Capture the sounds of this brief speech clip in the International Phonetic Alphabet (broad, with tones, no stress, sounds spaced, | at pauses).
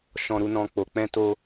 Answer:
ʃ ɔ̃˧ ɾ u˧ n ɔ̃˧ k͡p o˨ k͡p ɛ̃˧ t o˧